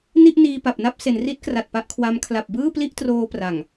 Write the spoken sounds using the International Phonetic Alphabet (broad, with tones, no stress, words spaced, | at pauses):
ni˥˩ʔniː˧pa˨˩p̚na˥˩p̚ se˩˦nri˦˥t̚kra˨˩t̚ pa˦˥ʔkʰwa˦˥m kʰla˨˩p̚bɯː˥˩pli˥˩ʔtroː˧ pra˨˩ŋ